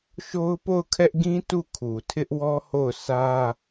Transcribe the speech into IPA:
ʃ o˦ ʊ̯ p o˦˨ ʊ̯ kʰ ɛ˦ ʔ ɡ ĩ˦ t u˦˨ kʰ u˨ tʰ ɪ˦ ʔ w ɔ˦ h o˦˨ ʊ̯ s ä˦

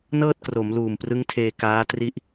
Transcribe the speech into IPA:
n ɤː˥˩ t̚ k r o˩˦ m l uː˨˩ m p r ɯ˦˥ ŋ tʰ eː˧ k aː˦˥ t r i˥˩ ʔ

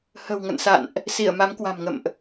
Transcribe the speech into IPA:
h ə̤˨˩ w ŋ ə̰˧˨ n s a̰˧˨ n ʔ | s i˧˩ ə̯ m a˨˦ m k w a̤˨˩ m ŋ ə̰˧˨ m ʔ

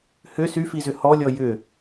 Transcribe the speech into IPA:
h ʏ s y f i z ʏ h ɔ lʲ ɔ j ʏ

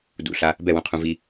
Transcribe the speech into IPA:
d ṵ ɬ a | b ɛ w ũ qʰ ũ v i

